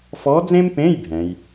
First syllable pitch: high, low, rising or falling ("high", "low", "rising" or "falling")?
rising